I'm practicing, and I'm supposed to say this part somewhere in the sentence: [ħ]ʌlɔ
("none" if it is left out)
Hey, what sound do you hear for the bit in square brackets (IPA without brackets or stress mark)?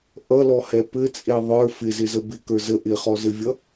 ʔ